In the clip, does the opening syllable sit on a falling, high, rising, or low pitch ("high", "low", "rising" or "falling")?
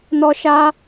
high